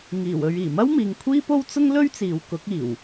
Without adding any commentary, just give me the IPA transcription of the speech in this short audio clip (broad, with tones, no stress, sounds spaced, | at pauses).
ŋ iː˨˩ w ɵ˨ ɥ iː˨˩ m ɐ˥ w m iː˨ ŋ kʷʰ iː˥ p o˥ w t͡s ʊ˥ ŋ l ɵ˥ ɥ t͡s iː˨˧ w k ʊ˨˥ k̚ iː˨˩ w